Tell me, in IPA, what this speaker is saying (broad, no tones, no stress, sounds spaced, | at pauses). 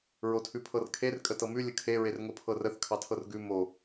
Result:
ɹ o tʰ ʉ pʰ ɤ r kʰ e r kʼ ə t ɤ m ʉ lʲ ə kʰ e ɹ e r ŋ o pʰ ɤ r ə θ kʰ ɑ tʰ ɤ r ɡ ʉ m o